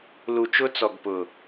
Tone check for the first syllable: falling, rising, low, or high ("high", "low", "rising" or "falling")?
low